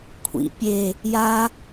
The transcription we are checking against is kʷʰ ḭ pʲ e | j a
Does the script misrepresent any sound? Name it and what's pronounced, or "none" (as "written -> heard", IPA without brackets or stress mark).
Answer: none